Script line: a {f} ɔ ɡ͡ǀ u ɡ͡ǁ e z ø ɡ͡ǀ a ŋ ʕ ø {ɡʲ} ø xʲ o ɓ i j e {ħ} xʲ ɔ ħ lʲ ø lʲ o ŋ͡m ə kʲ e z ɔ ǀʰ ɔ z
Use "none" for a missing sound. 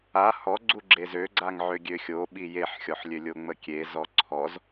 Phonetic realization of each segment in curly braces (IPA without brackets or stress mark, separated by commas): h, ɡʲ, ħ